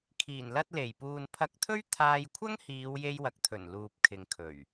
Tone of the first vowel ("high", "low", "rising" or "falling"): low